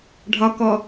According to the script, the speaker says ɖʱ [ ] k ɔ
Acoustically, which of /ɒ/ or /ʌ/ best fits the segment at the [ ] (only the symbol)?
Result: ɒ